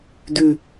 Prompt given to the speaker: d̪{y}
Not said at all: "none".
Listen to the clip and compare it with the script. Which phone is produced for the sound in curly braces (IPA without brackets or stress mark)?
y